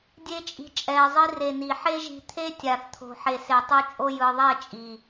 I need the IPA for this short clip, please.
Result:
dʲ e˧ t͡ʃʼ i̤˨ t͡ʃʼ ɛ˨ ɪ̯ zˤ i˧ r e˨ n i˨ ħ e˦ ʒ i̤˧ t̪ʰ e˦ tʲ a˨ θ t̪ʰ o̤˨ ħ e˨ s e˨ tˤ u˧ t͡ʃʼ o˧ j ɯ˨ ðˤ e˦˨ t͡ʃʼ i˨

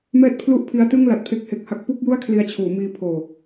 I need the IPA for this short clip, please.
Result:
m ɛː˥˩ t̚ pʰ l u˥˩ ʔ pʰ i˦˥ a̯ t ɯ˥˩ ŋ l a˨˩ t̚ pʰ e˦˥ k̚ h e˨˩ k̚ h a˥˩ k̚ p u˥˩ k̚ j u˥˩ a̯ kʰ l i˧ a̯ t͡ɕʰ uː˩˦ m iː˧ pʰ oː˨˩

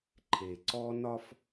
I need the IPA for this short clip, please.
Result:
ǃʰ e˨ ǀ ɔ˦ n ɒ˦ f

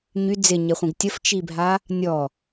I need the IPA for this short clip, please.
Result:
ɲ y d͡z ɪ ɲ ɪ χʷ ĩ ɡ tʲ ə f t͡ʃ i bʱ a | nʲ ɔ

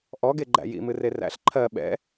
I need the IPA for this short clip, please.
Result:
ʔ ɔ ɡ e ɡ͡ǃ æ̰ j ḭ m ɨ r e r æ̰ ɬ ǃʰ ɜ ɓ ɛ̰

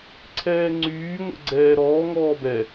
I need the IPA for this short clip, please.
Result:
ǀʰ ɛː ŋ͡ǀ yː ŋʷ ɛ̰ ɡ͡ǀ ɛː ɾ ɔː ŋ ɔː b ɛ

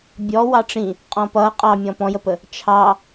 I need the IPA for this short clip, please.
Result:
bʲ ɔ w ɑ ʈ͡ʂ ĩ | qʼ ɔ̃ p ʌ qʼ ɑ mʲ ɔ̃ p ɔ̃ j ə p ə | t͡ʃʰ ɑ

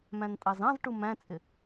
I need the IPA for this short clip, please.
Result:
m æ̃ n tʼ ɑ z ɑ̃ z ʈ u m æ̃ t͡sʼ ɪ

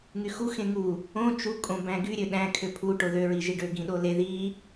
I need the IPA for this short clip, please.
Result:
ŋ y x u x ẽ ŋ u | õ t͡ʃ u kʼ õ b æ̃ ɡ y ɾʲ ø ɗ æ̃ kʰ ø pʰ u ʈ o ð ø ɹ i ʒ i ɖ ø ɡ ĩ ɗ o l e ð i

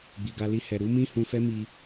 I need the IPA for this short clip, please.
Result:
ɡ͡b i˨ ɡ a˧ l i˧ h ɛ˨ ɾ u˨˦ m ĩ˦ h ũ˧ f ɛ˦ m i˧

